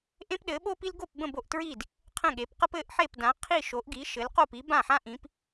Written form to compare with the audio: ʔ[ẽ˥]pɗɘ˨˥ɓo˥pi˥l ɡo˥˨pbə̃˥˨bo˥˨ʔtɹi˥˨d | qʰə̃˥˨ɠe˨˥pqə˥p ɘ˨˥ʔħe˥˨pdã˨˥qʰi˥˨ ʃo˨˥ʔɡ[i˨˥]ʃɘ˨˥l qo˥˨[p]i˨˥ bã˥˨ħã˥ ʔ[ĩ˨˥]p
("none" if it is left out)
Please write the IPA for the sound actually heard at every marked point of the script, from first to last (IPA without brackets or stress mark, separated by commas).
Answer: ẽ˥, i˨˥, p, ĩ˨˥